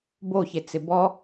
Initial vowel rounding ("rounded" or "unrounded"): rounded